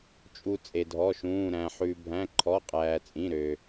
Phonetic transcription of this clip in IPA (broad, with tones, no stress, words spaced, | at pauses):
t͡ʃʼu˧ t͡sʼe˧dʱɔ˧˥˧ʃũː˧˥˧ɾæ̃˧ ħʉː˧bʱæ̃˧˥˧ ǃʰɔ˧˥˧ qʼæː˧ t͡sʼĩ˧˥˧ɾø˧